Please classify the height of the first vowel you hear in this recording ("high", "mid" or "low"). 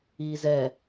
high